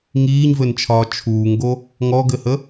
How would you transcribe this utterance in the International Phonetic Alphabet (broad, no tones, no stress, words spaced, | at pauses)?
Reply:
ŋiːɲvɘnt͡ʃʰɒː t͡ʃʰuːŋɡo | ŋɔɡɘhə